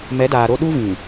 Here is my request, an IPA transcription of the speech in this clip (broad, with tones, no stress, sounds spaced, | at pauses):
m ɛ˨˦ d aː˨ ɾ o˦ ɗ u˦ v ĩ˨